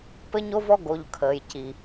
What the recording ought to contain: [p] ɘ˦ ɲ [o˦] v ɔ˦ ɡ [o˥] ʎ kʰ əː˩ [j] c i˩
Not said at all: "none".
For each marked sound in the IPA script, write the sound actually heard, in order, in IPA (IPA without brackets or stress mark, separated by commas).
p, o˦, o˨, j